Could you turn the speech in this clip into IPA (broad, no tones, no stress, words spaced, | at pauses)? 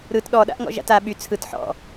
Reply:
ɾɯt ɗɔɗa̰ʔŋɔ̰ ʒa̰ta ɓy t͡sʰɯt ħɔ̰